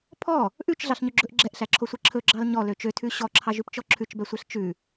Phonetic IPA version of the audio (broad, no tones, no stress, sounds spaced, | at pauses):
pʰ ɔ | ʔ ʉ t͡ʃ ɮ ɑ ɬ ɲ ɵ ɡ͡ǁ ɵ ʔ ɡ͡ǁ ɛ ʔ ɬ æ ǁʰ o sʷ ɛ ǁʰ ɵ ɡ͡ǁ ɑ l ɲ ɔ l ø t͡ʃ ø tʰ ʉ ɕ ɔ ǁʰ ɑ ʒ ʉ p t͡ʃ ɔ ǁʰ ʉ t͡ʃ b ɛ sʷ ɛ ɬ t͡ʃ ʉ